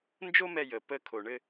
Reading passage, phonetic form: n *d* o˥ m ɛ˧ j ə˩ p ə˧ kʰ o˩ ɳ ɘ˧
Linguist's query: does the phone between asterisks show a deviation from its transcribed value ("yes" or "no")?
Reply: yes